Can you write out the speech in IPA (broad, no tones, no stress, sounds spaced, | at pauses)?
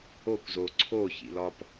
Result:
o kʷ z oː ǀʰ o ç ḭ l ɒ p